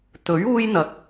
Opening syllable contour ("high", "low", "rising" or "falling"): rising